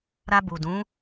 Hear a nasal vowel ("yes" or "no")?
yes